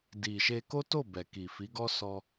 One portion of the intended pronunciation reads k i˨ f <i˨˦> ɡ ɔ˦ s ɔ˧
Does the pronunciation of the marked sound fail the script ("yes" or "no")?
no